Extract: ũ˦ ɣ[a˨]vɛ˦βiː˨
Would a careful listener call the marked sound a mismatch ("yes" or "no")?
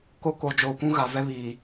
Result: no